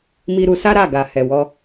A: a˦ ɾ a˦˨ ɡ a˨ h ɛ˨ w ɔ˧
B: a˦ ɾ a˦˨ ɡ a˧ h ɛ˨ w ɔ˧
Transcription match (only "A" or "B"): A